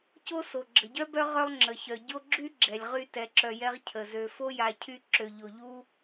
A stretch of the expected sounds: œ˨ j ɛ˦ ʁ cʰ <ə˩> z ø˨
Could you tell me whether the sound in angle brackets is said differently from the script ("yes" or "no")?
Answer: no